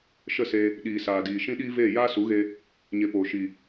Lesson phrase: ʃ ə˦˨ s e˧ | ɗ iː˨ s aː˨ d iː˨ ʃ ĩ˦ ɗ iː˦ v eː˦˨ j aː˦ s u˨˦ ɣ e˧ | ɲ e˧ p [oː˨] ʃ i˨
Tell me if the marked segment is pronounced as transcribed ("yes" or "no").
yes